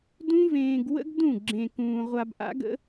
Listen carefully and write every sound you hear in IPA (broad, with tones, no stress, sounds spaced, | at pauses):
d ũ˦ v ẽː˧ ɡ w ə̰˦ ɡ d ũ˦˨ ɡ͡ǁ ẽ˧ k ũː˧ ʁʷ a˧ b ʔ a̰˦ ɡ ə̰˦